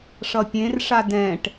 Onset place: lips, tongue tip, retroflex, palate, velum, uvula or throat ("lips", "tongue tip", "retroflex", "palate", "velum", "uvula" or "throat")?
retroflex